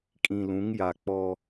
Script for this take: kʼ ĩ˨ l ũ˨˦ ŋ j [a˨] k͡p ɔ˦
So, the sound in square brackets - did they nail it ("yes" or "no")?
yes